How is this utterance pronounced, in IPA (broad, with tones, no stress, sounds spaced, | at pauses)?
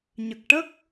ɲ ə˨˩ k̚ ʈ ə˦˥ k̚